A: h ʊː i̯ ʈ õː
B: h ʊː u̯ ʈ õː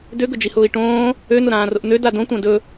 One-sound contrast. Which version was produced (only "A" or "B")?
A